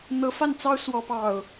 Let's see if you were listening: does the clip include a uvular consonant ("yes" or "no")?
no